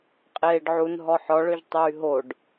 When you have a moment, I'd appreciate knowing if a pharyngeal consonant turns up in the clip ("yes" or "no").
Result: yes